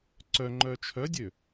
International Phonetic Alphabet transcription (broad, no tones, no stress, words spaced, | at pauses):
ǀœŋ͡ǃœ t͡ʃʰœdʲø